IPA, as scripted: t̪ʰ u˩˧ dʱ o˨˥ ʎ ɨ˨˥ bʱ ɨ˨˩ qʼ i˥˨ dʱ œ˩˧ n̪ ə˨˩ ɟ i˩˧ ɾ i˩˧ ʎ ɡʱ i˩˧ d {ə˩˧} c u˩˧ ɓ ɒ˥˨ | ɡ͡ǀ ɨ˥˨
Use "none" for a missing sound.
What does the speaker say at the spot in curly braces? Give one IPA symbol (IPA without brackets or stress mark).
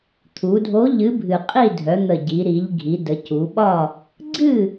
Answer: ə˩˧